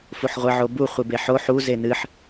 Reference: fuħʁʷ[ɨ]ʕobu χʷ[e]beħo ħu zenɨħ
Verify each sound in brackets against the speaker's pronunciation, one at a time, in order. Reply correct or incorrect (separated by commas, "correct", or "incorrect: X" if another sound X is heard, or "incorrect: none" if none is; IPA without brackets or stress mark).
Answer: correct, incorrect: ɨ